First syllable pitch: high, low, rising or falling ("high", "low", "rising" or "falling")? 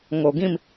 low